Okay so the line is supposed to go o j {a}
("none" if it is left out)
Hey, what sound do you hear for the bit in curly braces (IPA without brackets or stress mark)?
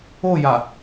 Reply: a